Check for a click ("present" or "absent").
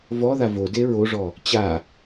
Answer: absent